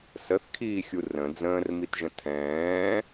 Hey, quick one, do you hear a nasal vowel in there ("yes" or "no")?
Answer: yes